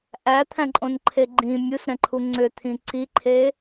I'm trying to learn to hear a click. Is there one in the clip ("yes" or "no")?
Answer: yes